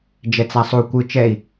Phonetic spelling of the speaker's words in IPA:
d͡ʒ ɛ t͡s a sˤ u kʷ ɯ t͡ʃ ɛ i̯

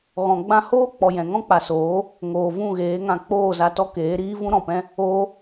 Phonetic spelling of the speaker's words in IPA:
ɣ ɔ̃˨ ɡ͡b ã˦ h oː˦ k͡p ɔ˨ j ɛ̃˨ ŋ ɔ̃˦ k͡p a˨ s oː˨˦ | ŋ oː˨ v ũ˦˨ ɣ eː˨˦ ŋ ã˧ k͡p oː˦˨ z a˧ t ɔ˦ k eː˨˦ ɾ iː˦ v ũ˦ ɾ ɔ̃˨ p ɛ̃˦ | oː˦

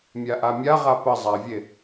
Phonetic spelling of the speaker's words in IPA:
mʲ a ʔ a mʲ a ʁ a p ə zˤ a vʲ e

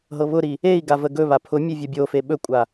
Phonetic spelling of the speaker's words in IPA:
ɦ ɤ β ʊ ɾ i | e i̯ ɡ a v ə ɡ ɵ β a pʰ ʊ mʲ e vʲ ɔ bʲ o f e ɓ ɵ kʷʼ a

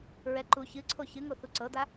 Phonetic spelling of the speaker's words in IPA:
ɹ ɛ ǃ u ç ɨ ǀʰ o ç ɨ ŋ o θ u ǀ ɤ d̪ a

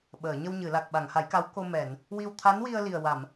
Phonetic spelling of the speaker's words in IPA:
ɓ əː˨˩˨ ɲ ə˧ w ɲ ɨ˨˩˨ l a˨˩ k̚ ɓ a˨˩˨ ŋ h a˨˩˦ j k a˧˥ w k o˧ m ɛ˨˩˨ n | w i˧ w t̪ʰ a˧˥ n w i˧ ə̯ l i˨˩ ə̯ w a˨˩˨ m

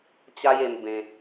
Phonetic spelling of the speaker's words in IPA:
t͡ɕ a˦ j e˧ m b ẽ˧

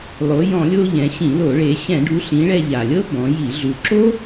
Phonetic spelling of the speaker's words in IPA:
lˠ o˩˧ j ɔ̃˧˩˧ lʲ o˧ ʎ ɛ̃˩˧ ɕ ĩ˧˩˧ l o˧˩˧ ɭ e˩˧ ɕ ɛ̃˧˩˧ ɖ u˩˧ ɬ ĩ˩˧ ɭ ɛ˧ ʎ a˩ lʲ ɤ˥ b ɔ̃˩˧ j i˧˩˧ ɮ u˩ ǁ o˥

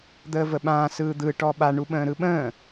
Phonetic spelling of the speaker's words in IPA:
d̪ əː v ə ɓ ãː s ɯː d̪ ɯ ʈ ɔ ɓ a ɳ u ɓ ə̃ː ɾ ɯ ɓ ə̃ː

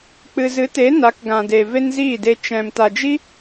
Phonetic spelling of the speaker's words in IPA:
k͡p ɨ˧ z ɨ˨˦ t e˨˦ n a˨˦ k ɡ ã˨ d e˨ v e˦ n z iː˦˨ d e˧ t͡ʃ ɛ̃˨ m t a˨ d͡ʒ i˦

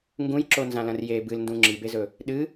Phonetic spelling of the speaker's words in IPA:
ŋ ɡ ũ j ǁ o n z ã l ɐ̃ r j e b ɨ l n d ũ ŋ͡ǁ i b e z ɵ | ɗ ɨ

